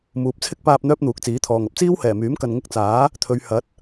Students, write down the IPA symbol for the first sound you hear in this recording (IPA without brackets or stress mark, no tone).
m